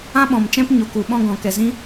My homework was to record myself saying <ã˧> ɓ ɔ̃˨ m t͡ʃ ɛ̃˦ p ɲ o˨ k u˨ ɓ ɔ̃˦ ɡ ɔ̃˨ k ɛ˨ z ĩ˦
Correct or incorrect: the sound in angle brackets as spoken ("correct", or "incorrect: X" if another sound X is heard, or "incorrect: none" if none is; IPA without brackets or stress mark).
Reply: incorrect: ã˦